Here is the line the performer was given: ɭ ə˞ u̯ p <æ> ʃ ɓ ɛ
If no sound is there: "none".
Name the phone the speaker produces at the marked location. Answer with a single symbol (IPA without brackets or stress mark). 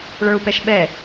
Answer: ɛ